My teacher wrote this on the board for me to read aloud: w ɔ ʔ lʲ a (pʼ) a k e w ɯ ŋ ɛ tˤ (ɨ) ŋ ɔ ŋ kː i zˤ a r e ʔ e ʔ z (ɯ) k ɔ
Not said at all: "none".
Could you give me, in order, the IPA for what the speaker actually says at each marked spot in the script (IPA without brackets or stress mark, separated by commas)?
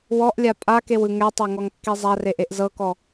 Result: pʼ, ɛ, ɤ